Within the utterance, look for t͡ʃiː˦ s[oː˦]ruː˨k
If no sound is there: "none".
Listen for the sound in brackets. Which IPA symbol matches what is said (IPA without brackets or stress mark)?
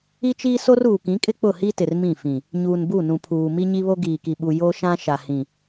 o˦